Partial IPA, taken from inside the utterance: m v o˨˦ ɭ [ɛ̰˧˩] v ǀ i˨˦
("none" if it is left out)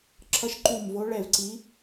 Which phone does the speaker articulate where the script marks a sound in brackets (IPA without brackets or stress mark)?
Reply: ɛ˧˩